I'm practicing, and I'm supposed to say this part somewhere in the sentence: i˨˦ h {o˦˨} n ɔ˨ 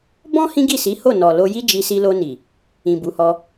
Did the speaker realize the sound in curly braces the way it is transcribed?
yes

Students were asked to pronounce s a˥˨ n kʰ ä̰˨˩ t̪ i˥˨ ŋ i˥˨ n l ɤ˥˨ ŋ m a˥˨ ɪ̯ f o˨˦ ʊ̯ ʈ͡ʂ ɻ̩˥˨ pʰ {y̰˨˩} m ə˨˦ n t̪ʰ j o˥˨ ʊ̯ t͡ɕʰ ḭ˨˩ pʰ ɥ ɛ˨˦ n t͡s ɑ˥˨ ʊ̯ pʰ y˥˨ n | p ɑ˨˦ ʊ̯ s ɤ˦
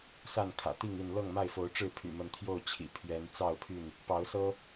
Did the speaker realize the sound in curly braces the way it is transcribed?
yes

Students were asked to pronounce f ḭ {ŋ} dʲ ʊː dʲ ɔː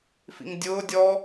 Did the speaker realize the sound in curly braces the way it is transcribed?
yes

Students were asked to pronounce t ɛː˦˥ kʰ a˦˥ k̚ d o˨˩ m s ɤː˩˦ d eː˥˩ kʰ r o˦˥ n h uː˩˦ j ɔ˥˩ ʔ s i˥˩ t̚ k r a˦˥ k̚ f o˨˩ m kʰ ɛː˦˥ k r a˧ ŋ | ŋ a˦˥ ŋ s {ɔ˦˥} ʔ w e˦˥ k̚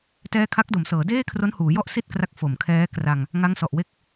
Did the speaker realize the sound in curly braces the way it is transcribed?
no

